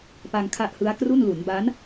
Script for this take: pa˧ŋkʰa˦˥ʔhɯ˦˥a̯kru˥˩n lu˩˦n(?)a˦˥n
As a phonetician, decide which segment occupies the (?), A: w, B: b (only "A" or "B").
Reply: B